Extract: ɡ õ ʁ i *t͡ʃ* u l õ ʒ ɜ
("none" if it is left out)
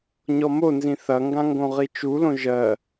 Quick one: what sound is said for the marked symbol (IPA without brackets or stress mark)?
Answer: t͡ʃ